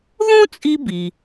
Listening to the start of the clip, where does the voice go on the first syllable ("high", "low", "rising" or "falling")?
high